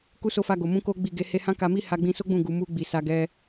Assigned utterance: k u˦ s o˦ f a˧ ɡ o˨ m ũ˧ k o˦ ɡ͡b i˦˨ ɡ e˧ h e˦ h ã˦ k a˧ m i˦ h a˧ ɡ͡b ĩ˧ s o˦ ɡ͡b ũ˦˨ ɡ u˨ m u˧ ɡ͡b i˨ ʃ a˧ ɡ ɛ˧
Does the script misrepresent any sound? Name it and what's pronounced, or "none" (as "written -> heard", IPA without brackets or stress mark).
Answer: ʃ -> s